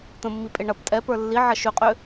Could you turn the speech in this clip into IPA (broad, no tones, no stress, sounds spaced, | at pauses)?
t̪ ə̃ mː i pʼ e ɳ ɐ p tʼ ɛ p ə˞ lː i ʕ ɐ ʃ ʏ qʼ ʏ